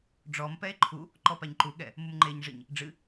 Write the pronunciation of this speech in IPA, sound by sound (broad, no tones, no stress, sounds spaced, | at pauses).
ɖ͡ʐ ɔ m p ɛ e̯ ǃʰ u | ǃ ɔ p a ɲ ǃ u ɠ ɛ | m u m ŋ͡ǃ e ɲ ʐ ɘ ɲ | ɖ͡ʐ ɨ